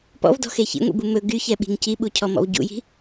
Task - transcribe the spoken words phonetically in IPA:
p ɔ̰ v d ɔ̤ x e ç ḭ ŋʷ ḭ b u m ɵ ɡ y ç ɛ ɓ i̤ ŋ c i ɓ u cʰ ɔ m ɔ̰ v ɟ ṵ j i̤

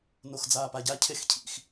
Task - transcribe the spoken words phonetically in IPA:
n o x d͡z aː p a ɟ a cʰ e x cʰ ḭ x

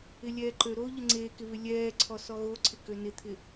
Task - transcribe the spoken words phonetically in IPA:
ɪ lʲ ɛː ǃ ø ɾ oː ʎ ə ŋ͡ǀ eː k ɪ β ɪ lʲ ɛː ǀʰ ɔ s ɔ ɣ o ǀʰ ɪ k ø n ɪ t̪ʰ ɪ

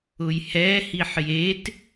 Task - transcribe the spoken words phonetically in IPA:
ʊ j h ɛ h i ħ j e t

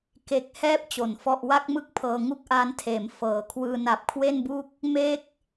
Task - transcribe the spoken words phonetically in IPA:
k e˦˥ k̚ h ɛː˥˩ p̚ t͡ɕ o˩˦ n f ɔ˥˩ ʔ w a˥˩ k̚ m ɯ˥˩ k̚ pʰ ɤː˧ ŋ u˥˩ k̚ ʔ aː˦˥ n tʰ eː˩˦ m f ɤː˩˦ kʰ w ɯː˧ n a˨˩ p̚ kʰ w e˥˩ n b u˥˩ k̚ | m e˥˩ k̚

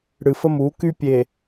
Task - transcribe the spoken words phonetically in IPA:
ɽ ɨ˨ f ə˦ m uː˨˦ k y˦ pʲ e˨

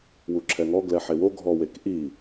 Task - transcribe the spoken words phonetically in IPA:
w u ǁʰ ɛ ŋ ɔ ɡ l ɛ ħ e w o ɡʱ ɔ w e k ʔ i

